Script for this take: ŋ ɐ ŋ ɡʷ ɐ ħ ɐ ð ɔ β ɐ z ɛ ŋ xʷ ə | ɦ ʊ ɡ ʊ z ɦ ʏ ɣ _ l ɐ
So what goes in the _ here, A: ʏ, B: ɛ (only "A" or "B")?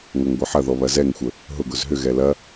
B